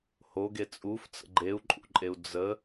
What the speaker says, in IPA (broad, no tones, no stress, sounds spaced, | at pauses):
h o ɡ e t͡sʼ u f t͡s ə̰ ɡ͡ǃ e u̯ ǃʼ ṵ ǃʼ e u̯ d͡z ə